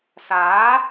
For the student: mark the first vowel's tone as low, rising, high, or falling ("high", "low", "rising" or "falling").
rising